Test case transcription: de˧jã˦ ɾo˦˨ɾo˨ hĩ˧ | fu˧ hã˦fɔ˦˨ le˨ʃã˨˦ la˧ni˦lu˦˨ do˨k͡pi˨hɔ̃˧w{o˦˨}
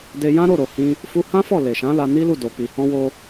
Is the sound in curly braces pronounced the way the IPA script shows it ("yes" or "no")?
no